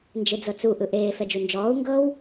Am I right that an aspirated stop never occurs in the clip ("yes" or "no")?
yes